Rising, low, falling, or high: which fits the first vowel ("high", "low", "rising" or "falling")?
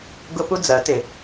high